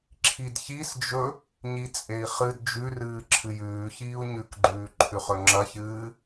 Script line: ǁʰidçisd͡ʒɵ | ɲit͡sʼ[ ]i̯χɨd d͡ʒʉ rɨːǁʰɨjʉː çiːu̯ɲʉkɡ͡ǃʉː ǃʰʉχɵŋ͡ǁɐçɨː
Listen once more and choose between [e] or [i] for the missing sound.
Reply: e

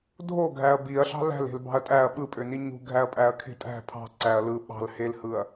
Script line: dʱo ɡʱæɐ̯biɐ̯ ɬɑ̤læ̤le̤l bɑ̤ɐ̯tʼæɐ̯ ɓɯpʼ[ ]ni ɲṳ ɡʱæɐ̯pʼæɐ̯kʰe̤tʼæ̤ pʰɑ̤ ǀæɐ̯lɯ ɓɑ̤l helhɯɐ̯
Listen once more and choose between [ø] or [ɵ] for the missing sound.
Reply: ø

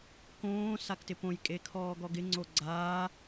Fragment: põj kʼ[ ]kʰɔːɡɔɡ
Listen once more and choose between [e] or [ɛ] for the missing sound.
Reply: e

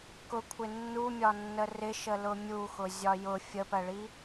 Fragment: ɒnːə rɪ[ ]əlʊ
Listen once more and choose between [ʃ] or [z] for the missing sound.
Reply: ʃ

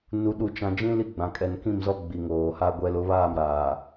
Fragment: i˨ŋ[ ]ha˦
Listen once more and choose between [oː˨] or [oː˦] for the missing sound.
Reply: oː˨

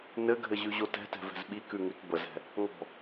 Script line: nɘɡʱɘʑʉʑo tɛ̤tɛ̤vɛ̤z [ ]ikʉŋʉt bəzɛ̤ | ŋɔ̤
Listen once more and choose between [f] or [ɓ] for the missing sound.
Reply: ɓ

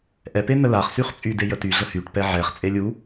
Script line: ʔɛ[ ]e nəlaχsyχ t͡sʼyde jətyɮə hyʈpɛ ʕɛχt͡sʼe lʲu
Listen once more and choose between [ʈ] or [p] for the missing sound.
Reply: p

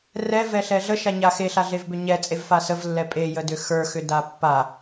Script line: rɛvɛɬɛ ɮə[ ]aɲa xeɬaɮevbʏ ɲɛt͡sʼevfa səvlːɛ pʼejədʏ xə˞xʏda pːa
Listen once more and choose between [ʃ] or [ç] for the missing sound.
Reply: ʃ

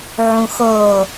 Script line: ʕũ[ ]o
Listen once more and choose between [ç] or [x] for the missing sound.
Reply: x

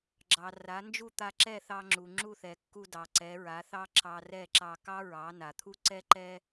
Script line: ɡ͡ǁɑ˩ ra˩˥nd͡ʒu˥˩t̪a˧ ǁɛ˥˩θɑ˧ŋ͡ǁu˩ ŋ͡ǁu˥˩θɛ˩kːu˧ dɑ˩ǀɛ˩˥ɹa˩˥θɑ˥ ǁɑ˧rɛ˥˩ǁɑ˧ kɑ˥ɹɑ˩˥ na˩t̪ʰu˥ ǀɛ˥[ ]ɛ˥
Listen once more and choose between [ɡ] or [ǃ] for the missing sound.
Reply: ǃ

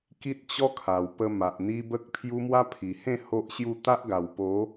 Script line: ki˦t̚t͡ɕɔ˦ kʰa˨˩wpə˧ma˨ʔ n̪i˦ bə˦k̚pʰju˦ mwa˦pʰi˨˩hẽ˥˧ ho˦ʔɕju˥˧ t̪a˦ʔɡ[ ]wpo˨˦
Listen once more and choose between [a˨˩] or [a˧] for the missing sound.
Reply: a˨˩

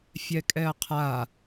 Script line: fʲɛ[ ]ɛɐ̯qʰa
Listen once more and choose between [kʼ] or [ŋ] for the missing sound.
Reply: kʼ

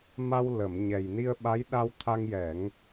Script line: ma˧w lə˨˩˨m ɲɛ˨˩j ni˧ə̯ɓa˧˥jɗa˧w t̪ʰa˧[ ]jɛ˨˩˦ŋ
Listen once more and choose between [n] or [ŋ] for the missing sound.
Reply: ŋ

